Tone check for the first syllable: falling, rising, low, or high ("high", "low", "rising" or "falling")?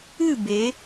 falling